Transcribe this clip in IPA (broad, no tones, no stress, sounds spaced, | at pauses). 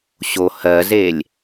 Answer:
ɕ o h ɜ z e lʲ